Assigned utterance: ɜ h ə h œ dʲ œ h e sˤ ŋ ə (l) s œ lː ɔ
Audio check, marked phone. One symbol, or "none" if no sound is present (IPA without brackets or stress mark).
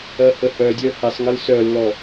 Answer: l